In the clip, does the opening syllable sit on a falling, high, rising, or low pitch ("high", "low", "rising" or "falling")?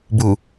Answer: low